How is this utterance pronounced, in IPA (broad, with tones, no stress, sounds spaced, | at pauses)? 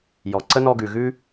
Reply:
j ɔ˩ ǀ ə˥ n ɔ˦ ɡ ʉ˨ ɣ ʉ˥